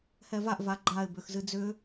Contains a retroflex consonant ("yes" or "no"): no